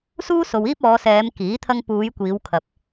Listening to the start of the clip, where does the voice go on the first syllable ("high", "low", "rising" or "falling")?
high